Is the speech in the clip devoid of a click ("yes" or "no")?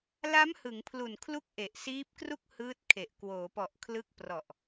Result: yes